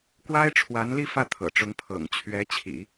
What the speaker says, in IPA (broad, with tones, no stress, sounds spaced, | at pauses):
k w a˥ ɪ̯ ʈ͡ʂʰ w a˧˥ n l i˥˧ f ä˥˩ t̪ʰ ɤ̰˨˩ ʈ͡ʂ ʊ˧˥ ŋ pʰ ɤ̰˨˩ ŋ t͡ɕʰ ɥ ɛ˧˥ t͡ɕʰ ḭ˨˩˦